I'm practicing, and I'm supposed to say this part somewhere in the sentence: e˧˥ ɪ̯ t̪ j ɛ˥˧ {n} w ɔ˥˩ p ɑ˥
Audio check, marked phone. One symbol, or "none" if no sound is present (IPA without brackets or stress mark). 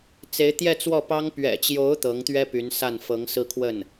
t͡s